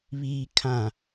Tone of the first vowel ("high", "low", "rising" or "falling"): low